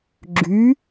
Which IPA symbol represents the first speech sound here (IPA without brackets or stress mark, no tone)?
ɡ͡ǁ